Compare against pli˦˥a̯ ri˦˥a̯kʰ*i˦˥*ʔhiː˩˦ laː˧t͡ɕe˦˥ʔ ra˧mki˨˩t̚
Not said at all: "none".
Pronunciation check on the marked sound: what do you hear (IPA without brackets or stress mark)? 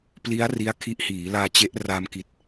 i˦˥